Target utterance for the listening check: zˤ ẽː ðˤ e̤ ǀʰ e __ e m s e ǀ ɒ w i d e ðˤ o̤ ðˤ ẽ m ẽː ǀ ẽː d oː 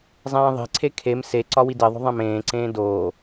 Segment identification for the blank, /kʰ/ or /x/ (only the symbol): kʰ